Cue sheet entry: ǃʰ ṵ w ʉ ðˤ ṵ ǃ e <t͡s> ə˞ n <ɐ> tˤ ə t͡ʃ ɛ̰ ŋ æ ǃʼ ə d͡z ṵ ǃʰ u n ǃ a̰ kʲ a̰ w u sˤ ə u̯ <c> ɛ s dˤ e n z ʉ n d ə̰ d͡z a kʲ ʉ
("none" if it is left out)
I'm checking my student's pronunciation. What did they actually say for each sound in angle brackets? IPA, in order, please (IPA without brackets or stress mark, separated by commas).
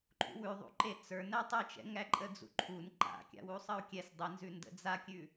t͡s, æ, kʲ